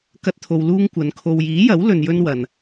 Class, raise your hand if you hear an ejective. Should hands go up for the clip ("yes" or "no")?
no